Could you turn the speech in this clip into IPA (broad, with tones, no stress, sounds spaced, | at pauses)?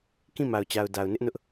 k ĩ˦˨ m a˨ ʊ̯ t͡ɕ a˨ ʊ̯ d a˨ ʊ̯ n ɪ˦ ʔ n ʊ˦ ʔ